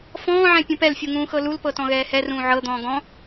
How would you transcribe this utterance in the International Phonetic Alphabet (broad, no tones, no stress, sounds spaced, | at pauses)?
f ɔ̃ː ʕ ɛ̃ pʲ ũ p ɛ l fʲ u ŋ ũː x ɤ l u l p ɤ t ɔ̃ ɣ ɛː h ɛ r ũː ʕ ɤ d̪ ɔ̃ː ɡ ɔ̃